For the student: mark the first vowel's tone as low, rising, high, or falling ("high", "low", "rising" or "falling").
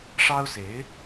high